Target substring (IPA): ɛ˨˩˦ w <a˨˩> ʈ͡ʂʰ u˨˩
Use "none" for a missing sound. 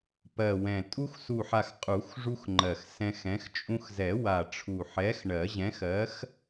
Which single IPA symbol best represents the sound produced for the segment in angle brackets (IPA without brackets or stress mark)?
a˨˩